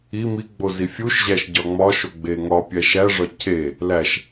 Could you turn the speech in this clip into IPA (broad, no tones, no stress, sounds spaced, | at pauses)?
i m i ɡ͡b o z i fʲ u ʃ ʑ æ ʃ ɟ ɒ ŋ͡m ɒ ʃ o ɡ͡b e ŋ ɒ pʲ æ ʃ æ ʐ ɒ cʰ e | l æ ʃ